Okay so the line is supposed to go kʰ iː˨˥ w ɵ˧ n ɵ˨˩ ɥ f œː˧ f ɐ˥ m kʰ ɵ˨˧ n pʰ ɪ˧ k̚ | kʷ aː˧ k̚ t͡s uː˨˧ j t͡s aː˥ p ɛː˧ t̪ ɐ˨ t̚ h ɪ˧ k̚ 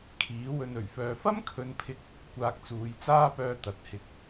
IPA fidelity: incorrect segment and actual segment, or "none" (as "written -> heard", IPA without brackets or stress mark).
ɛː˧ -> œː˧